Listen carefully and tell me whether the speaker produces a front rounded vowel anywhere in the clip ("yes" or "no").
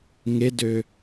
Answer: yes